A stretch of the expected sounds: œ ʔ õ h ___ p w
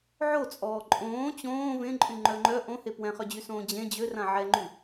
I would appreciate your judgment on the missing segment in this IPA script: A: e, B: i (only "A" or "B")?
A